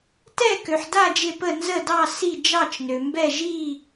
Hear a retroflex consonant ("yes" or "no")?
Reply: no